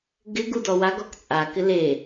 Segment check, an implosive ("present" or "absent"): absent